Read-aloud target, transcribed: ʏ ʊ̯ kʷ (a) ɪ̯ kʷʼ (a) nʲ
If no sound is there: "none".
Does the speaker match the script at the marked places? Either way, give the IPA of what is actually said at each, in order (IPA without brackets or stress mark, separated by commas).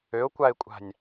a, a̤